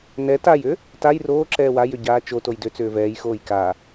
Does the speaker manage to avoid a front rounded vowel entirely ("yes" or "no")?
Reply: no